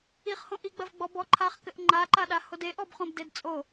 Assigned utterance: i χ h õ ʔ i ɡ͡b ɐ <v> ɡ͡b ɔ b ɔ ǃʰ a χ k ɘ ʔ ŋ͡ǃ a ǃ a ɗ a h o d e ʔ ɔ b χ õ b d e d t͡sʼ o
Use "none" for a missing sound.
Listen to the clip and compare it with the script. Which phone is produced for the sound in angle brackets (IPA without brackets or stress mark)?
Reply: v